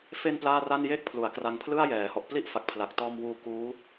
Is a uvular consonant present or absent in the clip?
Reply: absent